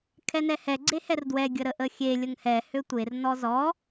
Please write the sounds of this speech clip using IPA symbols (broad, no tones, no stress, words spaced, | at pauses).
kʰɛnɛhɛ ɡ͡ǀehɛrdwɛ ɡʲəɾəʔəxʲe lʲəŋhɛ høtʷer nɔzɔ